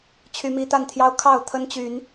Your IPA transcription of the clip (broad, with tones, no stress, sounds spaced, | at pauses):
t͡ɕʰ y˦ m i˦ t̪ a˥˨ n t̪ʰ j ɑ˦ ʊ̯ kʰ ɑ˥˨ ʊ̯ t̪ʰ ə˦ n t͡ɕ y˨˦ n